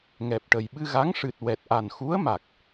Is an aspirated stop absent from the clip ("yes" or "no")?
yes